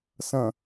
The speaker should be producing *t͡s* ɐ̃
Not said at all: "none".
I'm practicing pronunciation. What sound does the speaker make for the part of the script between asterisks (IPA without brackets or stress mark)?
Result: s